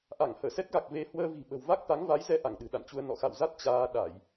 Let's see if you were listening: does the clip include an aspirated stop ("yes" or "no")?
no